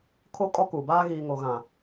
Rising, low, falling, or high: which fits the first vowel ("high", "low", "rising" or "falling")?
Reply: high